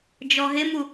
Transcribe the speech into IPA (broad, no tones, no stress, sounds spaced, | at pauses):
d͡ʒ ɔ ɦ ɪ m u